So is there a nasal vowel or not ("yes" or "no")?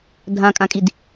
yes